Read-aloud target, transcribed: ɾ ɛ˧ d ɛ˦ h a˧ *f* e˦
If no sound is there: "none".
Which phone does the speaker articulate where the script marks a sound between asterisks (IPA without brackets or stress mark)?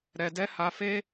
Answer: f